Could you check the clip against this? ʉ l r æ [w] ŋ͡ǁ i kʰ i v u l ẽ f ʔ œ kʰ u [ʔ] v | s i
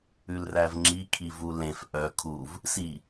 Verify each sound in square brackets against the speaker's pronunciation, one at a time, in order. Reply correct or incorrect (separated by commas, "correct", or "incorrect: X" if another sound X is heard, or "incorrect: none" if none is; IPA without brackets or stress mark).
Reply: incorrect: v, incorrect: none